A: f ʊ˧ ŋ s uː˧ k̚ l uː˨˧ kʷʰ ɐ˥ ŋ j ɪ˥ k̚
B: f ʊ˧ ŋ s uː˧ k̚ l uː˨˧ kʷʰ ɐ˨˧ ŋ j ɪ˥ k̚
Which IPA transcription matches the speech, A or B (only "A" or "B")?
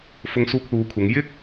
B